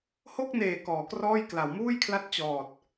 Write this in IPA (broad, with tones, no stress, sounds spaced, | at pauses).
h o˥˩ k̚ n eː˨˩ k ɔː˩˦ k r ɔː˥˩ j k l a˩˦ w m uː˥˩ j kʰ l a˦˥ t̚ t͡ɕ ɔː˨˩ t̚